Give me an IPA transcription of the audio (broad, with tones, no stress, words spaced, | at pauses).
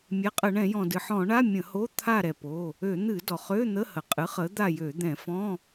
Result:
mʲɛ˩˧˩qʼə˧˩˧ɳɛ̃˧˩˧jɔ̃˩ dɨ˩ħɔ̃˧˩˧ɳa˧˥˧ mʲə̃˧˩˧ho˧˥˧ t̪ʰa˦˨ɾɛ˩po˩˧˩ | ø˧˩˧n̪ɨ˧˩˧ dɔ˩χø˧˥˧n̪ə˧˥˧hə˩ qʼɨ˨˥χə˨˥ d̪a˦˨jø˧˩˧d̪ɛ̃˧˩˧ fɔ̃˧˥˧